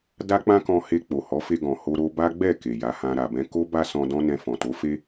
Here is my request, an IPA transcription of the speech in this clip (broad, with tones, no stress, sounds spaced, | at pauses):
d a˦ k͡p ã˦ k ɔ̃˧ h e˧ k͡p o˨ h ɔ˨˦ f e˧ ɡ ɔ̃˨ h o˧ ɾ o˧ b a˦ ɡ͡b ɛ˦˨ k e˨ j a˨˦ h ã˧ ɾ a˨ b ɛ̃˧ k o˦ b a˦ s ɔ̃˧ d ɔ̃˦ n ɛ̃˧ f ɔ̃˨ t o˨˦ f e˦